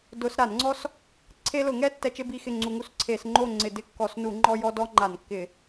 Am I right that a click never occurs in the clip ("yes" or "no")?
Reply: no